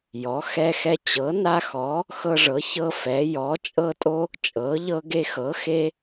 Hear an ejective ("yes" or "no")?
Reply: yes